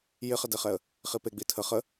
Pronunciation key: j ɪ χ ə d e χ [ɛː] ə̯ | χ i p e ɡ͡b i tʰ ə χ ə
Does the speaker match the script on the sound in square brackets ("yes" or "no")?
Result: no